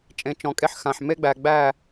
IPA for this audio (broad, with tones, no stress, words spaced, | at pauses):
t͡ʃʼẽ˨˦t͡ʃɔ̃˨kʼe˦ħxã˨ħ me˦ɡ͡bæ˨ɡ͡bæ˦˨